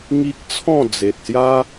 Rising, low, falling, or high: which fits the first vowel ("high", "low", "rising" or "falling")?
high